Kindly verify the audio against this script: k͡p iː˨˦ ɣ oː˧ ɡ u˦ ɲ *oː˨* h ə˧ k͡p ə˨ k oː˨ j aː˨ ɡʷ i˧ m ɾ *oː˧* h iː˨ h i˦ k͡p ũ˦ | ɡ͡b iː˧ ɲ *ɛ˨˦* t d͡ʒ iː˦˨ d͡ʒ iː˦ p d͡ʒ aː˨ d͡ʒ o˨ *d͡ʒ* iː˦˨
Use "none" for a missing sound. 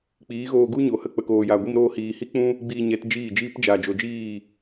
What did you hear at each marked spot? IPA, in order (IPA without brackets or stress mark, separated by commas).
o˨, oː˧, ɛ˨˦, d͡ʒ